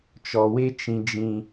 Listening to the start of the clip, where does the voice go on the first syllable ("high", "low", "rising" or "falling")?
low